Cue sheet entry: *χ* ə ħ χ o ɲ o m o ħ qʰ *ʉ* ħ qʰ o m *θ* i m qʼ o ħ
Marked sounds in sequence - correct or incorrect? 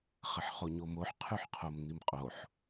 correct, correct, incorrect

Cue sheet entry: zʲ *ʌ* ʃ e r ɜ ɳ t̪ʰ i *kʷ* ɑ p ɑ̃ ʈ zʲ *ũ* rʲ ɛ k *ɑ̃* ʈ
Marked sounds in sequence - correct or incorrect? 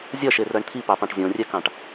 correct, incorrect, incorrect, correct

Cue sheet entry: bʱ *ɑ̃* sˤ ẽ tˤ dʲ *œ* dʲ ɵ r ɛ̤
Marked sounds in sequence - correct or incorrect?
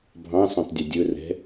correct, incorrect

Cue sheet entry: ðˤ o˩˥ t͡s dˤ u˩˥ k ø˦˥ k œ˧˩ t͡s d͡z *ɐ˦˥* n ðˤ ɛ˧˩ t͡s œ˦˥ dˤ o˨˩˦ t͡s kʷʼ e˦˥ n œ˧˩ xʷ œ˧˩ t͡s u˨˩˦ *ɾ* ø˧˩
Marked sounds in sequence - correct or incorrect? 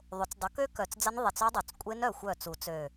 correct, incorrect

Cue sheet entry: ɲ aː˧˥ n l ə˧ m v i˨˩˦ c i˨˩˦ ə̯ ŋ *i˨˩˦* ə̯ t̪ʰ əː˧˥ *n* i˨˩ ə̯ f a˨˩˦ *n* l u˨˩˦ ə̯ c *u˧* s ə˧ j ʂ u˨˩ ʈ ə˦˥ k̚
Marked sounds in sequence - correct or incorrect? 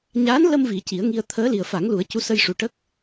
incorrect, incorrect, incorrect, incorrect

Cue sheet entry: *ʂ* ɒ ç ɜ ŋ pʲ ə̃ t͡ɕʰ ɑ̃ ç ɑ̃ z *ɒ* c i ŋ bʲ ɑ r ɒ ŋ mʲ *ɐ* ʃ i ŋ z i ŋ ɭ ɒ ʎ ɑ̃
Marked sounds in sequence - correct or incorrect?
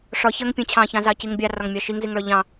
correct, incorrect, incorrect

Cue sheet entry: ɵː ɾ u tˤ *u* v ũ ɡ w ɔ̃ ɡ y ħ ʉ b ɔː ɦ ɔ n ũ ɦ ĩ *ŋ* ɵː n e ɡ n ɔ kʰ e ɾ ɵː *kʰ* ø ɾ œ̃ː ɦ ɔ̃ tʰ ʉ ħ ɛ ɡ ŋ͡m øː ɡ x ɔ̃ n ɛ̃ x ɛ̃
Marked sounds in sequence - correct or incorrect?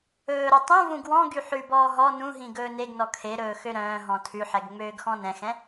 incorrect, incorrect, incorrect

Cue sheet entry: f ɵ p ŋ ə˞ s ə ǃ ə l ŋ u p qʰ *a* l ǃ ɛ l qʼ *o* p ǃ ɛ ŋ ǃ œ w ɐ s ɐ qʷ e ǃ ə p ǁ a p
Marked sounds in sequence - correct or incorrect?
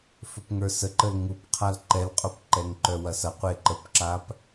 correct, correct

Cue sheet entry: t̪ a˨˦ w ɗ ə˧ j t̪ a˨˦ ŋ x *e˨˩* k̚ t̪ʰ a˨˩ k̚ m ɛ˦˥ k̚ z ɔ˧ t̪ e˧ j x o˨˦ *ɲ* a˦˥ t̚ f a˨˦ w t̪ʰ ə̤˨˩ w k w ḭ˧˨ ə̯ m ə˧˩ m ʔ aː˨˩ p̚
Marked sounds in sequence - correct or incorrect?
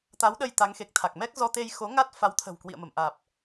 correct, incorrect

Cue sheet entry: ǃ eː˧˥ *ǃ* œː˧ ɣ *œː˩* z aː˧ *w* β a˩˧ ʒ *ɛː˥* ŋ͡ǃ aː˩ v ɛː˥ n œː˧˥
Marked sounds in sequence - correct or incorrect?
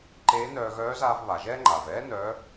incorrect, incorrect, incorrect, correct

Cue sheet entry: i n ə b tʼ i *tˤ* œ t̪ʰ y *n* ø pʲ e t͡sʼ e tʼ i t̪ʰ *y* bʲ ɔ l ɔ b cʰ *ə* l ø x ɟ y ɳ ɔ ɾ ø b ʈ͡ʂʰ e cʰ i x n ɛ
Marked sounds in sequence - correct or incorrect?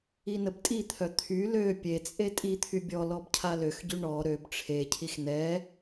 incorrect, incorrect, correct, incorrect

